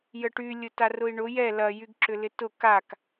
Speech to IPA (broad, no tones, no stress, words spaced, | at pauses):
jəʈy lʲʊtarʊi̯ɳʊ jɛ lɐ jyɡǁʏlɪtʊ kak